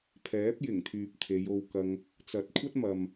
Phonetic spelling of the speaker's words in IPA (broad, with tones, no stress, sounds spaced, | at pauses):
pʰ ɛː˨˥ p̚ j ɪ˨˩ ŋ t̪ʰ yː˨ p̚ t̪ʰ e˨˧ j o˧ w k ɐ˧ ŋ | t͡s ɐ˨˥ t̚ kʷʰ ɐ˥ t̚ m ɐ˨ m